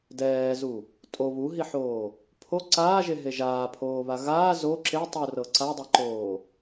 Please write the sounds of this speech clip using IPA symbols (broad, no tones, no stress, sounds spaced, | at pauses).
d ɛː z u | tʼ o β u ɦ i ħ oː | pʰ o ǀ aː ʒ e ɦ e ʒ aː pʰ oː β a ɣ aː z o ǁ e tˤ u r ɤ ǀ a dˤ ɛ ǃ oː